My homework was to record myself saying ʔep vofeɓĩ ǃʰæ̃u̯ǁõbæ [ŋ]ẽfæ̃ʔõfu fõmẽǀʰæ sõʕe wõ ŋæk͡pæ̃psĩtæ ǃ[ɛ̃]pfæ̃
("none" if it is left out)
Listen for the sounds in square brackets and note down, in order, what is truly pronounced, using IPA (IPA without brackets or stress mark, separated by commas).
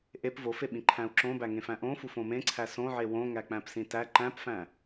ŋ, æ̃